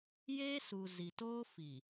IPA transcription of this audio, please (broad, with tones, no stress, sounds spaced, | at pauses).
j eː˦ s u˨ z i˨ t oː˦ f i˨